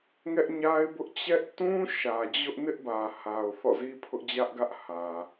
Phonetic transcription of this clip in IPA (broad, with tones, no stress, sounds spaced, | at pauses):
ŋ ɛ˦ ʔ ɲ a˦ ɪ̯ b ʊ˦ ʔ t͡ɕ ɛ˦ ʔ t ũ˦ ʃ ä˨ d͡ʑ ʊ˦ ʔ n ɪ˦ ʔ b ä˨ h a˨ ʊ̯ θ ɔ̰˦˨ z i˦ pʰ ʊ˦ ʔ d͡ʑ ä˦ ʔ ɡ ä˦ ʔ h ä˨